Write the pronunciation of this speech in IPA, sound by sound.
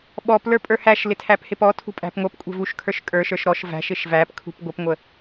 ɓ ɔ p l ə˞ pʼ ə˞ h æ ʃ l ɪ tʰ æ p h ɪ p ɔ tʰ ṳ pʼ æ̤ p ŋʷ ʌ p kʷʼ ɛ̤ v u ʃ kʰ ə˞ ʃ kʼ ə˞ ʃ ə˞ ʃ ɾ ɔ ʃ v æ̤ ʃ ɪ ʃ v æ p kʰ ṳ p ɡʷ ə p ŋʷ ə

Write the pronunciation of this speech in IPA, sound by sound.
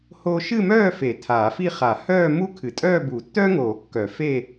h oː˥ ʃ ɨ˥˧ m œː˥˧ f e˨˩˦ tʰ aː˨˩˦ f i˥˧ χ a˨˩˦ h œː˥˧ m u˥ kʰ ɨ˨˩˦ tʼ œː˥˧ b u˨˩˦ tː œ˥ ŋ oː˨˩˦ kː œ˨˩˦ f e˥˧

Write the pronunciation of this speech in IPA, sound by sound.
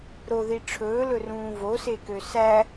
ɾ o ð i ʈ͡ʂʰ ɵː l ɵ r ũː v o s e k ø s æ

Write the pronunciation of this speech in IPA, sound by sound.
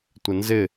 tʷ ɪ n z ɪ

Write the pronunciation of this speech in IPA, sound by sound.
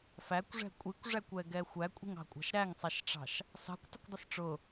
f æ kʷ ʐ ɛ̤ kʷʼ i kʷ ʐ æ kʷ ɛ ɡ ɛ xʷ æ kʷʼ i̤ ŋ ɑ̤ kʷʼ ɑ̤ ʃ ɾ æ ŋ sˤ ɛ ʃ ʈ͡ʂ ɑ̤ ʃ | s ɑ̤ kʷ tˤ ə̤ kʷ dˤ ə s ʈ͡ʂ ʊ

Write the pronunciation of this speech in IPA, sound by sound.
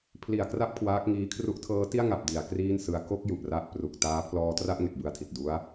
pʰ l i˨˩ a̯ k r a˥˩ p̚ kʰ w aː˦˥ k̚ ŋ iː˦˥ kʰ r u˦˥ ʔ tʰ ɤː˦˥ t i˥˩ a̯ ŋ a˨˩ p̚ d i˩˦ a̯ k r iː˥˩ n s ɯ˧ a̯ k o˥˩ k̚ j u˨˩ ʔ r a˥˩ ʔ p r u˨˩ k̚ t aː˦˥ pʰ l ɔː˧ t r a˥˩ ʔ ŋ e˨˩ k̚ b ɯ˧ a̯ tʰ i˨˩ t̚ d u˦˥ a̯

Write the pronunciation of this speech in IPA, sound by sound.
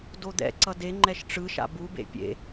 d o d̪ ɛ̰ ǀ ʌ d e ŋ͡ǃ ɛ ʃ ʈ͡ʂ ɯ ʃ a̰ b u b ḛ pʲ ḛ

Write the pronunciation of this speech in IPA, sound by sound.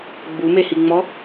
ɡ͡b u m e h i ŋ͡m ɔ

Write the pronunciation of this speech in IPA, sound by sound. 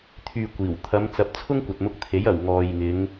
t̪ʰ yː˨ kʷ iː˨˩ w t̪ʰ ɐ˨˧ m t͡s ɐ˨˥ p̚ t͡sʰ ʊ˥ ŋ kʷ ɐ˨ t̚ m ʊ˧ k̚ t̪ʰ e˨˥ j ɐ˨˩ w ŋ ɔː˨ j ŋ ɪ˨˧ ŋ

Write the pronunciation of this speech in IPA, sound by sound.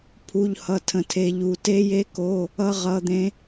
pʰ u˧˥˧ ʎ h ʌ˧˥˧ tʰ ə̃˦˨ tʰ e˦˥ ʎ u˧˥˧ t e˦˥ j e˦˥ k o˧˥˧ | ʌ˦˥ ʁ ʌ˧˥˧ d̪ ẽ˦˥

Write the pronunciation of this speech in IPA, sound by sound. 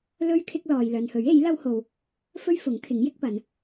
l ɵ˥ ɥ kʰ ɪ˥ k̚ l ɔː˨ j l œː˨ n h ɵ˨˥ ɥ e˨˥ j l ɐ˥ w h o˧ w | f ɵ˥ ɥ f ʊ˨˥ ŋ kʰ ɪ˨˥ ŋ j ɪ˥ k̚ p ɐ˨˧ n

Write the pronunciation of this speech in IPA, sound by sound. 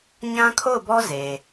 ɲ ã˦ kʰ o˦˨ ʊ̯ b ɔ˦ z e˨

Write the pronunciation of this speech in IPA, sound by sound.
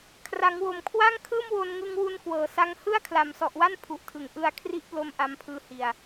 kʰ r a˩˦ ŋ w o˨˩ m kʰ w a˥˩ ŋ kʰ ɯː˥˩ m w o˧ n ŋ ɯ˧ ŋ w u˧ n k w ɤː˨˩ s a˧ ŋ h ɯ˥˩ a̯ kʰ l a˨˩ m s ɔ˨˩ ʔ w a˥˩ n pʰ u˨˩ ʔ tʰ ɯ˩˦ ŋ ʔ ɯ˧ a̯ kʰ r i˦˥ ʔ p l o˧ m ʔ a˦˥ m pʰ ɯː˧ h i˨˩ a̯

